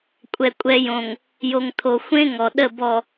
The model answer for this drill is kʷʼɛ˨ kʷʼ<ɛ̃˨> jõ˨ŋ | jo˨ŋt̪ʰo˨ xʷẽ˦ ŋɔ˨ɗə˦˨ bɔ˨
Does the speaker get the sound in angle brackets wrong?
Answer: yes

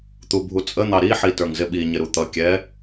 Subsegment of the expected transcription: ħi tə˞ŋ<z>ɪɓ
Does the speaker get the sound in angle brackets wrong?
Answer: no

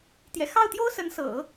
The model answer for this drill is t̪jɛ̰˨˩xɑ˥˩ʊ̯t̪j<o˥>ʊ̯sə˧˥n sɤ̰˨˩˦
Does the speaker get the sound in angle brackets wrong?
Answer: no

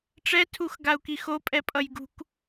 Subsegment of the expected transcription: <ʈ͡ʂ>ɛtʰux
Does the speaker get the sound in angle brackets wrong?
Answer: no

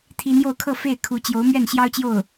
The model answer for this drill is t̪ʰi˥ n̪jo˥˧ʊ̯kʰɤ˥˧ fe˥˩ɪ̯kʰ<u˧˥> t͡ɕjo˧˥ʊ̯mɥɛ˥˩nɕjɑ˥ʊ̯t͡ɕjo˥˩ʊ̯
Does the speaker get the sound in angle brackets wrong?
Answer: no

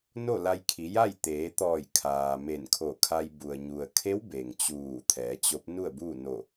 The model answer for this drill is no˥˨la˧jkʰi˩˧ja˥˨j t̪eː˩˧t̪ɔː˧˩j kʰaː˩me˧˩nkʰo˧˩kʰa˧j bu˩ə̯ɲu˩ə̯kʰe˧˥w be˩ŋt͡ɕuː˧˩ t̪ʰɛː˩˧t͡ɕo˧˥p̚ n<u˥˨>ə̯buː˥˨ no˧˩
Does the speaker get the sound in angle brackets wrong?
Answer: no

